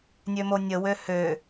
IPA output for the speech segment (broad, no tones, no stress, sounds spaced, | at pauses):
nʲ ø m o nʲ ə w ø h ø